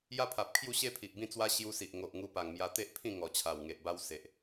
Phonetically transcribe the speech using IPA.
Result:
j a˦ pʰ a˨ p̚ kʰ j u˥˧ ɕ e˦ pʰ i˨ ʔ b ĩ˥˧ t͡s w a˦ ɕ j u˧ s i˨ ʔ ŋ o˨ ʔ ŋ u˧ p a˨˩ ŋ m j a˧ t̪ e˦ ʔ pʰ ĩ˥˧ ŋ ɔ˨˩ t͡ɕʰ a˨˩ w ŋ e˨ ʔ b a˧ w s e˨ ʔ

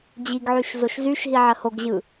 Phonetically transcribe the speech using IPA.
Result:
d͡ʑ i ɡ ʕ y ʃ z o ʃ z y ʃ ɦ i ʕ ə h o ɡ ʑ ɯ

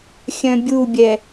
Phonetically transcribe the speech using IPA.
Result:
xʲ œ̃ bʲ u bʲ ɛ

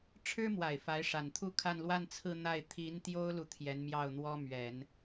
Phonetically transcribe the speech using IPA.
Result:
ʈ͡ʂʰ ɻ̩˥ m w a˨˩ ɪ̯ f a˧˥ ɪ̯ ʂ a˨˩ n t̪ʰ u˥ kʰ a˥˧ n l w a˥˧ n t͡sʰ ɹ̩˥˧ n̪ a˥˩ ɪ̯ t̪ʰ i˧˥ n t̪ j o˥ ʊ̯ l u˨ t̪ʰ j ɛ˧˥ n m j ɑ˥˩ ʊ̯ n̪ w ɔ˥ m ɥ ɛ˨˩˦ n

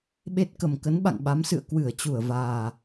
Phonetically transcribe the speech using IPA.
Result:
ɓ e˦˥ t̚ k ə˨˩ m k ə˨˦ n ɓ a̰˧˨ ŋ ɓ a˨˦ m s ɨ̰˧˨ ə̯ k w ɨ˧˩ ə̯ t͡ɕ u˧˩ ə̯ v aː˨˩

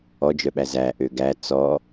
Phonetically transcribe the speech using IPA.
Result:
ɔ d͡ʒ œ ɓ æ z æ ʔ ø ɡ æ t͡s ɔ

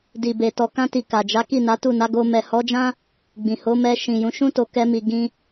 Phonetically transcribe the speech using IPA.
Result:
d i˨ b e˨ t ɔ˨ k ã˧ t i˨ k a˨ d͡ʒ a˨˦ k i˦˨ n a˨˦ t u˦˨ n a˨˦ ɡ o˧ m ɛ˨ h ɔ˨˦ d͡ʒ ã˦ | ɡ͡b ĩ˨ h o˨˦ m ɛ˧ ʃ ĩ˨ j ũ˨˦ ʃ ũ˦ t o˧ k ɛ˧ m i˨ ɡ ĩ˧

